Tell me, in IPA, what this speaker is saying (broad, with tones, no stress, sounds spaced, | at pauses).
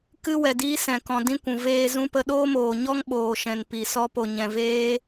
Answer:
k ɨ˦ w ɛ˨ d iː˦ s ɛ̃˨ k ɔ̃˨ d ĩ˦ kʷ ũ˨ v eː˧ z ũ˦ p ə˦ ɗ oː˦ m oː˨ ɲ ɔ˦ ŋ ɓ oː˨ ʃ ɛ̃˨ n p i˨ s ɔ˧ p o˨ ɲ ɛ̃˨ v eː˦